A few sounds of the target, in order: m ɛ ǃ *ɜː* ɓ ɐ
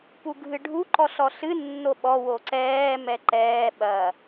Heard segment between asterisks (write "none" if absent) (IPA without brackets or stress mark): ɛː